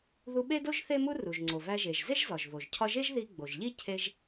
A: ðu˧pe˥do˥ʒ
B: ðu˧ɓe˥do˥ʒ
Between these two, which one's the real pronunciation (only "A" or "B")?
B